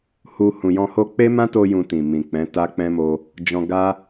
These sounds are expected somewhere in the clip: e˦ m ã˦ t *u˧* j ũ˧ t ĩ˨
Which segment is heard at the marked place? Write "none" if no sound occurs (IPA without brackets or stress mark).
o˧